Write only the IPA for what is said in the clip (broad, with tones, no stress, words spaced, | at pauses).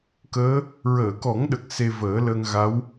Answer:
kəː˧˥ | ɹəː˨˩˨kɔ˨˩˦ŋɗə˨˩k̚ se˧vəː˨˩˦ ləː˧ŋɣa˧˥w